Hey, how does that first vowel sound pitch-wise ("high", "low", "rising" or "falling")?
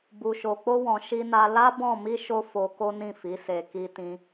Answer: low